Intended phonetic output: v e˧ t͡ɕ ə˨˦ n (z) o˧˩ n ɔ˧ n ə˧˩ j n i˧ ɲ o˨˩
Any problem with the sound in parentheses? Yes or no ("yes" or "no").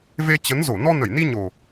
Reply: no